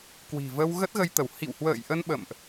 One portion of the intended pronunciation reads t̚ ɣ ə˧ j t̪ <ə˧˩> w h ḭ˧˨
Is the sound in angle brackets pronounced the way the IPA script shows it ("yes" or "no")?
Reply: yes